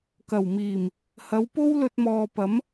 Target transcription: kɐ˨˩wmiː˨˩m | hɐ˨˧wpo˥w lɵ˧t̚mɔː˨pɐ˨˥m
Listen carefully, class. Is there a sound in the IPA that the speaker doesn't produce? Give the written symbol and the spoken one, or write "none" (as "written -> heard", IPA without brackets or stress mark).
none